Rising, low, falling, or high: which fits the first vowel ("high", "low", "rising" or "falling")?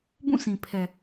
falling